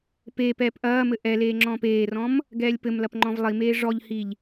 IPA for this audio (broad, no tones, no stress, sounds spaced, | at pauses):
p eː p ɛː p ʔ ɐː m ɘ ʔ ɛ l eː ŋ͡ǁ ɔ̃ː p eː r ɔ̃ m | ɡ ɛː lʲ p ɘ m l ɐ p ŋ͡ǃ ɔ̃ v lˠ i m eː ʐ ɔ ʎ h i ʎ